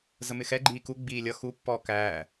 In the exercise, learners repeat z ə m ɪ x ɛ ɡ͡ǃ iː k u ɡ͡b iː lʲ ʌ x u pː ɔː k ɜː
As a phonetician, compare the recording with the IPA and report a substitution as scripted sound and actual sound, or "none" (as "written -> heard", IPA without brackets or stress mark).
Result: ɜː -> æː